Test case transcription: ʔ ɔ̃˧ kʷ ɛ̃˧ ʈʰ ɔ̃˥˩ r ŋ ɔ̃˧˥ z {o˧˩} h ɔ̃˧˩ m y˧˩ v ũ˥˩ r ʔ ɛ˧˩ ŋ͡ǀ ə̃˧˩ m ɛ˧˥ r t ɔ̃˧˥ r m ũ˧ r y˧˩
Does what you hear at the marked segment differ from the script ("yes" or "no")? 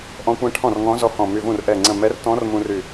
yes